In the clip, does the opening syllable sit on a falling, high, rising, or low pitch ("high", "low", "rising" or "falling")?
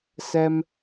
high